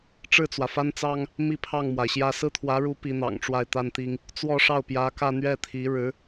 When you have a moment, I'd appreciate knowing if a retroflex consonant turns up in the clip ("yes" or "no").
yes